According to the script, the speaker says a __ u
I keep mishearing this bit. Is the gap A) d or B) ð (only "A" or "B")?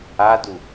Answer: A